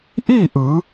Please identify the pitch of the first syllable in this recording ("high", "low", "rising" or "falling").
falling